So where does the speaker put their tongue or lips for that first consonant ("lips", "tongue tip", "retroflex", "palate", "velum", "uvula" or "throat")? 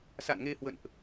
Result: tongue tip